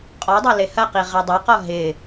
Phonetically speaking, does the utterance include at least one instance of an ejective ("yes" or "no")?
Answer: yes